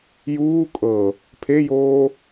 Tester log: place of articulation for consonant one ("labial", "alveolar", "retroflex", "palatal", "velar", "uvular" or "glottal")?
palatal